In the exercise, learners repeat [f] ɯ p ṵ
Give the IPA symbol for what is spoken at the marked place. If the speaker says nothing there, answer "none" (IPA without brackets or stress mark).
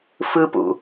f